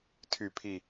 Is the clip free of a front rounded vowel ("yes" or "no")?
no